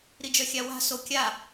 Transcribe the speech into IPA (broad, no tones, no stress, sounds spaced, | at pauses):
ɾ i d͡ʒ œ xʲ a w a̤ s o kʲ a